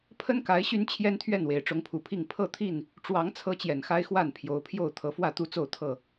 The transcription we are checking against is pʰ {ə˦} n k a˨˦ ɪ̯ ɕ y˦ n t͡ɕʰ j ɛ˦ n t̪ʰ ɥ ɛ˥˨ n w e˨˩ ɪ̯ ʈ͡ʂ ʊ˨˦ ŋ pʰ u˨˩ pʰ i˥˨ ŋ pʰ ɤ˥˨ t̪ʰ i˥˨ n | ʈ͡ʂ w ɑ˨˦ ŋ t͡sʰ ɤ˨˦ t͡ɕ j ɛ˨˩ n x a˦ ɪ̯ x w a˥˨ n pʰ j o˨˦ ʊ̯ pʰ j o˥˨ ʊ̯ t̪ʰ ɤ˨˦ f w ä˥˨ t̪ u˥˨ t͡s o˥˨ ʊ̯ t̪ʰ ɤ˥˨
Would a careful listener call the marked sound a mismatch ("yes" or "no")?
no